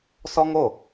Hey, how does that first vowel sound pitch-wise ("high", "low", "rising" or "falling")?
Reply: high